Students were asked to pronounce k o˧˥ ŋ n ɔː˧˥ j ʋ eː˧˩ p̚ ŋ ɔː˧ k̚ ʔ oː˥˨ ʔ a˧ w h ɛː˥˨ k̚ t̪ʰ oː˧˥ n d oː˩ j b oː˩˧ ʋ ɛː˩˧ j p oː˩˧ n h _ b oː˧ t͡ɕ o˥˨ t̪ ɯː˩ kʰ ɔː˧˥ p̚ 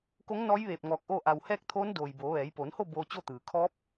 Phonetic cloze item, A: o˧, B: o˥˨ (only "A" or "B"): B